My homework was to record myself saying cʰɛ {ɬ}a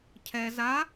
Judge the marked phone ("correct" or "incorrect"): incorrect